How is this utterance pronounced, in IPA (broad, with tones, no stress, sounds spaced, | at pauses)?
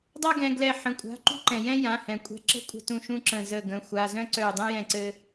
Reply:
dˤ a˥ ɡ ɛ̃˩˧˩ ɡ l ɛ˧˩ ħ ə̃˩˧˩ kʷʼ a̤˩˧˩ ǃ ṳ˥ ǃ ɛ̃˩ j ɛ̃˥ j ã˩˧˩ h ɛ̃˩ kʷʼ ɛ̤˧˩ ǁ ə̤˥ kʷʼ ə̤˧˩ t ũ˧˩ ʃ ũ˥ ǁ ə̃˧˩ z ə˧˩ ɡ ə̃˩˧˩ xʷ a˩˧˩ z œ̃˥ ǀ œ˧˩ dˤ ɛ̃˥ j ɛ̃˧˩ ǀ ɘ˧